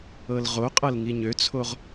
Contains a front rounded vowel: yes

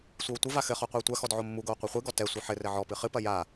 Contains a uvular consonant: yes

